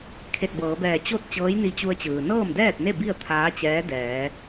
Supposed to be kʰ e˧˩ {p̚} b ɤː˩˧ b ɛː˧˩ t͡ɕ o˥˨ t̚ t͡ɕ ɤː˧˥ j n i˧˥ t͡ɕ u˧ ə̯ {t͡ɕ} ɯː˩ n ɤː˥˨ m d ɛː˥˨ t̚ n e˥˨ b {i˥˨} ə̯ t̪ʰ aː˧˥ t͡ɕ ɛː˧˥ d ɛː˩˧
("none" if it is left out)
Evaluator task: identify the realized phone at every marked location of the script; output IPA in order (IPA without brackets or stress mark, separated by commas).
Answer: t̚, t͡ɕ, i˥˨